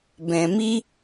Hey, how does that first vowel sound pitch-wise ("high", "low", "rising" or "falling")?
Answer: low